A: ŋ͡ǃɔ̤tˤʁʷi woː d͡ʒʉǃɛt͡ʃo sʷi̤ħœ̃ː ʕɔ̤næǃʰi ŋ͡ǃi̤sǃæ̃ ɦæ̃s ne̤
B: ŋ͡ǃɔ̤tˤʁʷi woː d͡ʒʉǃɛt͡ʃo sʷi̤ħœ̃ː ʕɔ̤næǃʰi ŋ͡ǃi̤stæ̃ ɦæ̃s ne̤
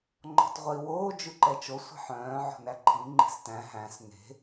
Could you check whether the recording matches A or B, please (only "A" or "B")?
B